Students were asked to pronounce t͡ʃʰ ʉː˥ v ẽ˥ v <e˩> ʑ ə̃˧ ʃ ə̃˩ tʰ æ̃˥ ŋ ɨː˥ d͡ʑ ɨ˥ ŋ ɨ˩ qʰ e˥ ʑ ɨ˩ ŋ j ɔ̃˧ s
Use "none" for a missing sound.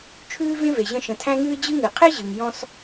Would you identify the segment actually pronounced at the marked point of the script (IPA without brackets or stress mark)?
e˩